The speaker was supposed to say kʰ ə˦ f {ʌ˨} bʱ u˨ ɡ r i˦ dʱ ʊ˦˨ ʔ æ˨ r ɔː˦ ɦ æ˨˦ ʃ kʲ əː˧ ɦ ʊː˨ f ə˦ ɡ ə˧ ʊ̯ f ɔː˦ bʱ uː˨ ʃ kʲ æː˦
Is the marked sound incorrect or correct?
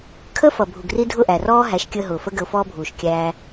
correct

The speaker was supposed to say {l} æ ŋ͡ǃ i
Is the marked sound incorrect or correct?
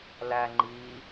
correct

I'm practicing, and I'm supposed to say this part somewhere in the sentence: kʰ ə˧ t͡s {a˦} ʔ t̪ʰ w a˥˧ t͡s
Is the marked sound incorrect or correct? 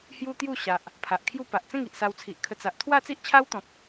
incorrect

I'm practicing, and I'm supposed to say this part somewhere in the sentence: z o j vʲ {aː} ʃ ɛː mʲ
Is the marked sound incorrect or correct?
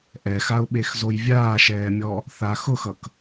correct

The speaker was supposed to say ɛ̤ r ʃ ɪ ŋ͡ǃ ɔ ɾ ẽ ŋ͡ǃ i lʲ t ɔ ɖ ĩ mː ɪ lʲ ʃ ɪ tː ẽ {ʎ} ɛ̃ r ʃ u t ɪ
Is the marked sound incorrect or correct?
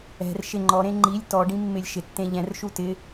correct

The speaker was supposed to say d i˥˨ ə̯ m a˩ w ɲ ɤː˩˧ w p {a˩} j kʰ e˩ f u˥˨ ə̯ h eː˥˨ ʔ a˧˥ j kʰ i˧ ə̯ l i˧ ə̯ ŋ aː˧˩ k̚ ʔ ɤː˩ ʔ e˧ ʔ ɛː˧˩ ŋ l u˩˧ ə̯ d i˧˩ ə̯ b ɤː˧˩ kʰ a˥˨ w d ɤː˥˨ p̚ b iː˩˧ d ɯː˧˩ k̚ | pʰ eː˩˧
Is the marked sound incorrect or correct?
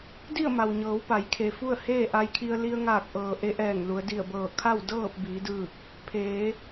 incorrect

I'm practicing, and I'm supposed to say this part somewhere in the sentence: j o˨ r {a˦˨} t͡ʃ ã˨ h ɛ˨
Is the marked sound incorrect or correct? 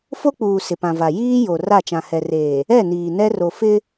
correct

